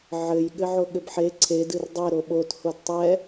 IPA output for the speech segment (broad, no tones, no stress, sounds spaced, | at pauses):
ʕ ɘ j ɠ ɘ ʕ o ɠ ɘ b ħ e ǀʰ e d ɨ r dˤ e ɾ o ɓ o t h o d tˤ ɛ